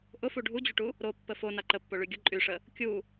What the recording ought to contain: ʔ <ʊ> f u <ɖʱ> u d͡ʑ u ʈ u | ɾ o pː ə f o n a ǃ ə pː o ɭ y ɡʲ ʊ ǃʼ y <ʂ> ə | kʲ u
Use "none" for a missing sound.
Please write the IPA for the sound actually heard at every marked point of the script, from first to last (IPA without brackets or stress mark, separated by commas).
ʊ, ɖʱ, ʂ